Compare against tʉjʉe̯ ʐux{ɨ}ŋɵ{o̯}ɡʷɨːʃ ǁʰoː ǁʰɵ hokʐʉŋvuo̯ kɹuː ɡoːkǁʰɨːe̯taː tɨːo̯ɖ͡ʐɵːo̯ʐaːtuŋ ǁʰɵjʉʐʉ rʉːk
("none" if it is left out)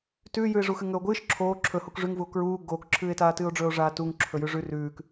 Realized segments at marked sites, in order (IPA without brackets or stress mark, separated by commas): ɨ, o̯